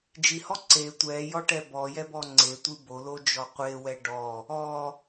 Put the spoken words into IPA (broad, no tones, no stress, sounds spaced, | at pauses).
d͡ʒ i h ɔ ǀ e tʷ ɛ j ɔ ʈ ɛ b ɔ j ɛ b ɔ ŋ͡ǀ e tʷ ɨ b o l o d͡ʒ ɔ qʷ e w ɛ ɖ ɔ | ɔ